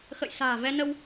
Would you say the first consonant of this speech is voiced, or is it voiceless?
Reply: voiceless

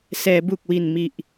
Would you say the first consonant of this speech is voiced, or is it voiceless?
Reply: voiceless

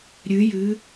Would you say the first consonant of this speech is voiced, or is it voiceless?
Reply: voiced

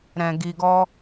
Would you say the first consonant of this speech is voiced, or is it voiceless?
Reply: voiced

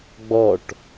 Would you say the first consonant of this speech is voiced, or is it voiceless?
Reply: voiced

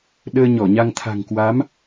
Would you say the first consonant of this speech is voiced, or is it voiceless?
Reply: voiced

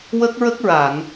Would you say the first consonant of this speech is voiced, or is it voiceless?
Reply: voiced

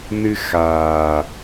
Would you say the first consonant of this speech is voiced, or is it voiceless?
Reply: voiced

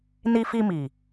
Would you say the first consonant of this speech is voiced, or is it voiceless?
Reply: voiced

